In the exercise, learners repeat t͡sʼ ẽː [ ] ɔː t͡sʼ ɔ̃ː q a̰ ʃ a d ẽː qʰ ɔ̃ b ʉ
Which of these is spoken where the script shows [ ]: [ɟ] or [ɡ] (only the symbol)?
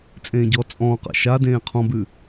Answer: ɟ